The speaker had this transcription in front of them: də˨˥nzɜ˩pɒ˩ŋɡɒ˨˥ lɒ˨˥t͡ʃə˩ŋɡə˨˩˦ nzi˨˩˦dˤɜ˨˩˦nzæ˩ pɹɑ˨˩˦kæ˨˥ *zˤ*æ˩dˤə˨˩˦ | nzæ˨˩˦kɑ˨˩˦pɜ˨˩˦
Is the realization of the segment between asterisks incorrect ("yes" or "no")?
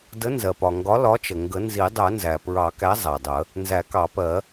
no